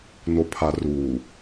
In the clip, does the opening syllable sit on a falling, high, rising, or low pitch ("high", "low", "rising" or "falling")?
low